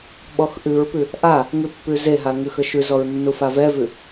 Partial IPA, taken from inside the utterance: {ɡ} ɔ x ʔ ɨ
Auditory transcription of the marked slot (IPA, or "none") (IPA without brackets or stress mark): ɓ